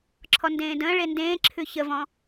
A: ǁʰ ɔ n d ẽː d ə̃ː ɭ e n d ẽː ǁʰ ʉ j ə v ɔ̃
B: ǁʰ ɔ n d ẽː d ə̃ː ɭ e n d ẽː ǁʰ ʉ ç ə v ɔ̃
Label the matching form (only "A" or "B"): B